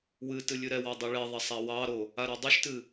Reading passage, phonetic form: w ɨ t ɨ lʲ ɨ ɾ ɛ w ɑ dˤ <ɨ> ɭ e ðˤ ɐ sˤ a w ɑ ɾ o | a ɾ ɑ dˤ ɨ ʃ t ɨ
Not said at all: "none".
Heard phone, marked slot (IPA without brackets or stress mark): ɨ